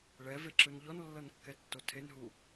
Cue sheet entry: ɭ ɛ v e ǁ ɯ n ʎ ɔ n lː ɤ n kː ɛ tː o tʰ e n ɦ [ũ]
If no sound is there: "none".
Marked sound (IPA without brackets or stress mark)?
u